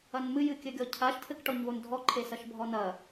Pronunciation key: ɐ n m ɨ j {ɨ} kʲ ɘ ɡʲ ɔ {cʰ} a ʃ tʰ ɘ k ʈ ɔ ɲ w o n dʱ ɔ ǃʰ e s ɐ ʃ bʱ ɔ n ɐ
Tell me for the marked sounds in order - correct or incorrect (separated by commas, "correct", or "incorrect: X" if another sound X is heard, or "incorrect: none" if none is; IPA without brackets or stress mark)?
correct, correct